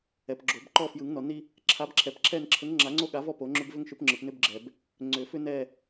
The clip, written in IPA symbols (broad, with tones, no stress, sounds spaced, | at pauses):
ɛ˨ p ɡ͡ǁ o˨˩˦ b ǃ ɔ˦˨ f j ɯ˨˩˦ ŋ n ɔ˨ n i˦ | ǁʰ a˨˥ b ǁʰ ɛ˨ p ǁʰ ɛ˦˨ n ǁʰ ə˨˥ ŋ ŋ͡ǁ a˨˩˦ ŋ͡ǀ o˦˨ ɠ a˨˩˦ v ɔ˦˨ p o˨˩˦ ŋ͡ǁ ʏ˦ b v ʏ˦ ŋ ʃ ʏ˨˥ p ŋ͡ǁ ɯ˨ p n ʏ˦ b ɡ͡ǁ ɛ˨ b | ŋ͡ǀ ʏ˨˩˦ f ʏ˦ n ɛ˦˨